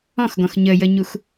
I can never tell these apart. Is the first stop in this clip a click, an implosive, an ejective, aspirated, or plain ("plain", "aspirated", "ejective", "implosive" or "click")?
plain